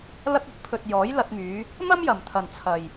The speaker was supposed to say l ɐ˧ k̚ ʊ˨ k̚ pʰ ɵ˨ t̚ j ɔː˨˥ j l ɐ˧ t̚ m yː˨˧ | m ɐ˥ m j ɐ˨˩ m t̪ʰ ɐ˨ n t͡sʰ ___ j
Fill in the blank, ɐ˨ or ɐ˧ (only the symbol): ɐ˨